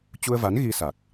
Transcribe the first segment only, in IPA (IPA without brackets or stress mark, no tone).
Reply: t͡ɕ